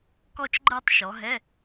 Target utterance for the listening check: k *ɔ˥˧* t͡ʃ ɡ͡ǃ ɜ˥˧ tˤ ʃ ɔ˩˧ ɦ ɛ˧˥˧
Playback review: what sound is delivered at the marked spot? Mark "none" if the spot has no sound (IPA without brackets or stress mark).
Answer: ɔ˥˧